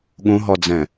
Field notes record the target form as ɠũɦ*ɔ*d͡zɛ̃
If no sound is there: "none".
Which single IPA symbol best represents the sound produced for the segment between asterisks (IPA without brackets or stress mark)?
ɔ